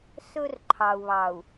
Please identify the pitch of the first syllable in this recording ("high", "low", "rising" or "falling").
high